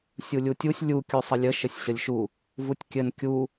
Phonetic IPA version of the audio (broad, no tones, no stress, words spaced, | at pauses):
sʲulʲutʲusʲ lʲu kʲusˤəlʲə ʃɘsʲɕəlʲʃu | vutʲkʲɘn kʲu